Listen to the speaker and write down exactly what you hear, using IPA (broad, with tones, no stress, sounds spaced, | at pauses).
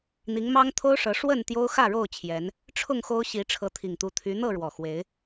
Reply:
n̪ i˨˦ ŋ m ɑ˦ ŋ t̪ʰ o˦ ʊ̯ ʂ ɤ˨˦ ʂ w ə˥˨ n t̪ j o˦ ʊ̯ x ä˥˨ ɻ o˥˨ ʊ̯ t͡ɕʰ j ɛ˨˦ n | ʈ͡ʂʰ ʊ˥˨ ŋ x o˦ ʊ̯ ɕ i˨˦ ʈ͡ʂʰ ɤ˨˦ t̪ʰ i˨˩ ŋ t̪ u˨˦ t̪ʰ y˨˦ n̪ ɤ˥˨ ɻ w ɔ˨˩ x w e˨˦ ɪ̯